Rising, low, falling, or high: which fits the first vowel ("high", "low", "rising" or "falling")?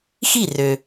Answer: falling